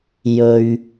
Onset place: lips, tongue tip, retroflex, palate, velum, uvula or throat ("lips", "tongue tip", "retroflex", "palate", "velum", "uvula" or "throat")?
palate